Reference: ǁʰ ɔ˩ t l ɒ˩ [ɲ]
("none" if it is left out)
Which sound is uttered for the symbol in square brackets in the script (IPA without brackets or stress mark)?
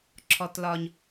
ɲ